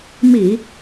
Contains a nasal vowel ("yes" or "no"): no